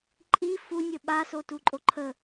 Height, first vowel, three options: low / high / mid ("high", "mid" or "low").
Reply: high